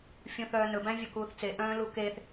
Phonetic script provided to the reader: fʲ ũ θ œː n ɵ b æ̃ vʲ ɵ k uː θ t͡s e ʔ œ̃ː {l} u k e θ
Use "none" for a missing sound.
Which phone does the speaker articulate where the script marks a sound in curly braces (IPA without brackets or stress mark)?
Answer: l